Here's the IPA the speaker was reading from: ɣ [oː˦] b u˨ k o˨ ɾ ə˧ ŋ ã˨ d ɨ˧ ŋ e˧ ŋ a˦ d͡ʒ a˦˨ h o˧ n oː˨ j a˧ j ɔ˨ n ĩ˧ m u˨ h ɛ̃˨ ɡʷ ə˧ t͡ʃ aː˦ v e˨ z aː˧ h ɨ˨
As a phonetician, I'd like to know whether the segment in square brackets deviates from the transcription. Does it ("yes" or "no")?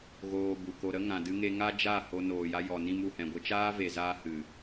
yes